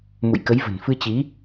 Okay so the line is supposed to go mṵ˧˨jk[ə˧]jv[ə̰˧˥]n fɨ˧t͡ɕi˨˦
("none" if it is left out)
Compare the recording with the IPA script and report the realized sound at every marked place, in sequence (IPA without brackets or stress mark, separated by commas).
ə˨˦, ə̤˨˩